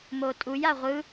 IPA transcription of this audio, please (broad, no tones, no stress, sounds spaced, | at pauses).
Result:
m o tʼ u j a ʁʷ ɯ